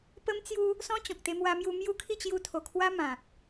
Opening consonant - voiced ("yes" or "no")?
no